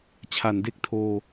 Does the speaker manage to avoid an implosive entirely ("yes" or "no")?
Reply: yes